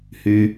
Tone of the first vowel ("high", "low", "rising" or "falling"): low